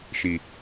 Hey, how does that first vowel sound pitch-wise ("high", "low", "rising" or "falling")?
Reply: low